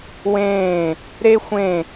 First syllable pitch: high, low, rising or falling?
falling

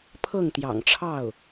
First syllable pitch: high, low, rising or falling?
falling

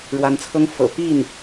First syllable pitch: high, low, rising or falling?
rising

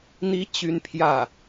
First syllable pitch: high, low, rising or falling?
rising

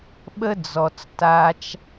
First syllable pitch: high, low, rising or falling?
high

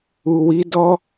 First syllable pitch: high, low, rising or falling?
low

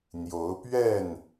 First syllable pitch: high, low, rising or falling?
rising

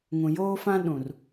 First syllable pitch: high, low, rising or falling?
low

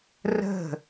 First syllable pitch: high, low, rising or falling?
falling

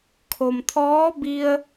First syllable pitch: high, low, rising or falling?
low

